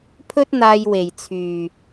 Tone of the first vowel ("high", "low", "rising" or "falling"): high